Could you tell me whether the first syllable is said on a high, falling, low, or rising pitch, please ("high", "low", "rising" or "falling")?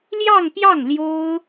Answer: falling